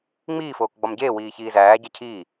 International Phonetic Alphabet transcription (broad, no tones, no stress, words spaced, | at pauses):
ŋ͡miːfoːkɡ͡bɒm ɟeːwiːçiː zæːɟæ cʰiː